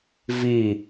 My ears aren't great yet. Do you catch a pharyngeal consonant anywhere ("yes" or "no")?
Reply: no